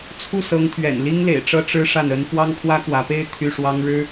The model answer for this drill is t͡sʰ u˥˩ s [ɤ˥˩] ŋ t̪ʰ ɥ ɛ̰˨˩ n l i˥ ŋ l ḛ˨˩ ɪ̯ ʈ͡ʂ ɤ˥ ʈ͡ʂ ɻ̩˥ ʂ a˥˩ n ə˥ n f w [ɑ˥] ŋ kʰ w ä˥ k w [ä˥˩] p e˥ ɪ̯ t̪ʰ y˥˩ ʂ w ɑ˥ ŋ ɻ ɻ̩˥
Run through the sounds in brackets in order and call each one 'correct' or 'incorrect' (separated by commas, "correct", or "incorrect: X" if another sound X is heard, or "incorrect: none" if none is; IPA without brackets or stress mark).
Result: incorrect: ɤ˧˥, correct, incorrect: ä˧˥